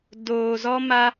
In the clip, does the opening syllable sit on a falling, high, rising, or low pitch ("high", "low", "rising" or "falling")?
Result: low